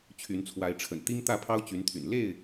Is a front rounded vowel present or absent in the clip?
present